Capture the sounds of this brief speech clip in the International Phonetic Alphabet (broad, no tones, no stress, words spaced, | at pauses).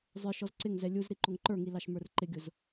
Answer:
zˤə˞ʃ ɔzǀɪŋzɛ lʲuz ɾiǃʊŋǃə˞ŋi lɑʃmə˞rǃɪɡʲʊz